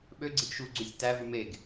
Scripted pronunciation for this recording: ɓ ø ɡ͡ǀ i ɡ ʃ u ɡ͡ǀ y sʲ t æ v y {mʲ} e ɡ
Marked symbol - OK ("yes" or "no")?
no